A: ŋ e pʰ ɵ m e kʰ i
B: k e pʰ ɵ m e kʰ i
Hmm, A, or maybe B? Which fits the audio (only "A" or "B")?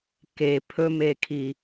B